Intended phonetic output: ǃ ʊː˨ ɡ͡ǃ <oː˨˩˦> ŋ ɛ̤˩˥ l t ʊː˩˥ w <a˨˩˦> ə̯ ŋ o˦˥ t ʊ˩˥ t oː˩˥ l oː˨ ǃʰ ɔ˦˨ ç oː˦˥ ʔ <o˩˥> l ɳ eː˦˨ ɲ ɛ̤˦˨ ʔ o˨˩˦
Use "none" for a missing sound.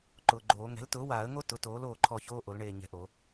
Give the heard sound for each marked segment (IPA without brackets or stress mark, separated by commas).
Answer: oː˨˩˦, aː˨˩˦, o˩˥